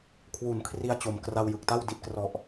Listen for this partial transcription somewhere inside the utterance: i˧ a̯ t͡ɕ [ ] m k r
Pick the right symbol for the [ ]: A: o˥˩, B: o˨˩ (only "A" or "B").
B